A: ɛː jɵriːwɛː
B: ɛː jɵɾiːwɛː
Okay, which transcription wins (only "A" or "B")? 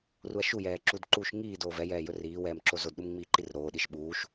A